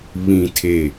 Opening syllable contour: low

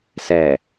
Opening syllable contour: low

